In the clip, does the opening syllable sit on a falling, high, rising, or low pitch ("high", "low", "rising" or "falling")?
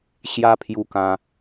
high